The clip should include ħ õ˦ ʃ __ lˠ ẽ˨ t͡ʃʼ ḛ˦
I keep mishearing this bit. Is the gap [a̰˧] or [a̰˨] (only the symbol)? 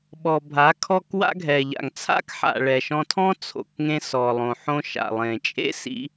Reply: a̰˨